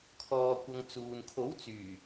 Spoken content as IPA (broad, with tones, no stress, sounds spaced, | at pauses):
kʰ ɔː˧ kʷ ɐ˧ ŋ t͡s uː˨ n kʰ o˨˥ w t͡s yː˨˩